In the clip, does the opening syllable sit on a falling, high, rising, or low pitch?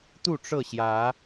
falling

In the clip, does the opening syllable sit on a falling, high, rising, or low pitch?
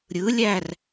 rising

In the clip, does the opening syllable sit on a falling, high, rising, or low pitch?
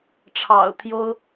low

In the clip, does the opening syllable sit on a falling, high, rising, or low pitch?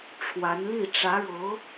rising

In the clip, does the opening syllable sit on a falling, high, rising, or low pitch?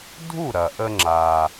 falling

